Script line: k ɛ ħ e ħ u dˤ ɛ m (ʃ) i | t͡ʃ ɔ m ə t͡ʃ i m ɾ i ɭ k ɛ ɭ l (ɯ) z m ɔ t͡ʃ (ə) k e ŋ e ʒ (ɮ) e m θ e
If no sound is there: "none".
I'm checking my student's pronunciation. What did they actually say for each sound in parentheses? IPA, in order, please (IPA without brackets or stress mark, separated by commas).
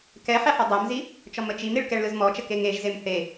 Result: z, ɯ, ə, z